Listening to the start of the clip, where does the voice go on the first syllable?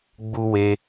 high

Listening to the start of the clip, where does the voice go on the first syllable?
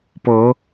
rising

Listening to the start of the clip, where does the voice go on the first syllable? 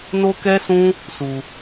high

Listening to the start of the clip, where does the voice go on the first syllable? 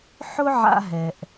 high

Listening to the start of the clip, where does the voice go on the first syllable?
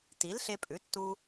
rising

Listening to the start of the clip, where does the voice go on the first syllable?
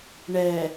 low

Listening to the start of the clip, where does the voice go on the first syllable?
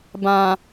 low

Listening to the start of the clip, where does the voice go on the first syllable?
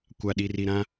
low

